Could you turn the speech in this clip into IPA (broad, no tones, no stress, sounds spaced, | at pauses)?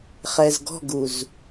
χ ɛ z ɡ ɔ̤ ɡ u z